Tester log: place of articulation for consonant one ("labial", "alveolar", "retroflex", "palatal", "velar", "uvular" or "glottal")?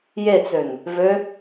palatal